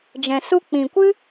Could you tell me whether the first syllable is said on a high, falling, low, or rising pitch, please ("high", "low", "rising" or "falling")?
low